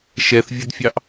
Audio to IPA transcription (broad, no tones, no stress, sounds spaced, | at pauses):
ʃ ɛ θ vʲ ə d fʲ ɑ ʔ